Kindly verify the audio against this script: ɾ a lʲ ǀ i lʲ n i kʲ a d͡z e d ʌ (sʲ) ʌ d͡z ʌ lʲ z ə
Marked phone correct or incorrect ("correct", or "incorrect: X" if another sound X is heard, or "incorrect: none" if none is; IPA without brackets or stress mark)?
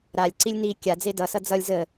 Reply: incorrect: s